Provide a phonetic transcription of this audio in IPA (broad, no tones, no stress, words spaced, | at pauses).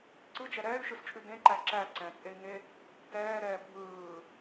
ǀɯd͡ʒɛ ɾɛːy̯ʃɯst͡ʃʼʉ dẽǃæ ǁæ ǀɛ̃t͡sʼei̯ŋe | tɛːɾɛː bʱɯː